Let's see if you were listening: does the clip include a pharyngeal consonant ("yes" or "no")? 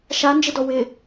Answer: no